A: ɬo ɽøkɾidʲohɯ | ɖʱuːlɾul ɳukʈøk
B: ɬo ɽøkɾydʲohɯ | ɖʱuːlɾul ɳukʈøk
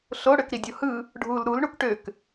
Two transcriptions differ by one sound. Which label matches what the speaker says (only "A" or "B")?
A